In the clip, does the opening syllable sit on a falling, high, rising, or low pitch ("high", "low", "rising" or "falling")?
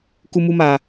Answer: high